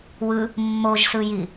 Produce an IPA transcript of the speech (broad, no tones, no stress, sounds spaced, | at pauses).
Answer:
w ɯ | mː o ʒ s ɯ j i